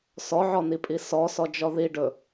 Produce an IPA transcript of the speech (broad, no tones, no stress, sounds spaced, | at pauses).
s ɔ ʕ ɔ n i pʼ i s ɔ s ɔ d͡ʒ ɔ ð i ɖ ɵ